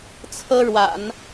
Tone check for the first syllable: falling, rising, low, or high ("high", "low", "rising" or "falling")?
high